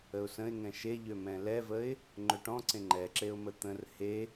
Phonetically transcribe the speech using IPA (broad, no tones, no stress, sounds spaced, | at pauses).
ə ʊ̯ s ə̃ ɪ̯ ŋ ɛ̃ ʃ e ʎ ø m ɛ̃ l ɛ v ə ɪ̯ | ŋ͡ǃ ø ʈ ɔ̃ ǀ ẽ ŋ͡ǃ ɛ ǁ e ʊ̯ m ə t̪ ə̃ r h e